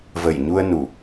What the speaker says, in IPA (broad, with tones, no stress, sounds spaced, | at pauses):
v ə˧˩ j ɲ u˧ ə̯ n u˧˩˨